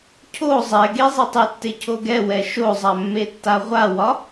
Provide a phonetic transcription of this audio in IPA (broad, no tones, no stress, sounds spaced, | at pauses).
cʰ o zˤ ɛ ɡ e zˤ e tˤ e tː e cʰ o ɡ ɛ w ɛ ʃ o zˤ a mː e tː a ʁʷ a w ɒ